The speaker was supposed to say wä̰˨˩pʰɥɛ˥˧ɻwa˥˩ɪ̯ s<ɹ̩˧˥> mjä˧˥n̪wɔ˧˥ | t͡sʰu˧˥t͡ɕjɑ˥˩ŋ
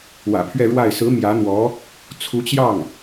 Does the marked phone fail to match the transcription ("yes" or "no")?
no